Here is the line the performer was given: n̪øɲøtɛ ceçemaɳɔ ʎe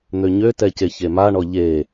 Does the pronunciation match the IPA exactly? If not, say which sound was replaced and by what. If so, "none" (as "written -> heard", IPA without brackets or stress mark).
none